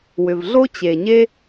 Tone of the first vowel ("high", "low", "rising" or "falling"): low